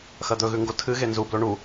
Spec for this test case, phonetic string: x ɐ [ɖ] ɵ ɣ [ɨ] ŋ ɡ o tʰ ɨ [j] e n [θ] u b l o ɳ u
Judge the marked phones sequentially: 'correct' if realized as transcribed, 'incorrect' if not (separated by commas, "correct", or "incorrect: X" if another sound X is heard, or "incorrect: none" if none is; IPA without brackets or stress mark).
incorrect: d̪, incorrect: ʉ, incorrect: ɣ, incorrect: z